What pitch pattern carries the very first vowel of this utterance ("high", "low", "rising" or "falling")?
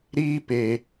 high